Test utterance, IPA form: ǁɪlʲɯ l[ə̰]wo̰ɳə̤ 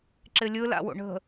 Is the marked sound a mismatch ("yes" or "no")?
yes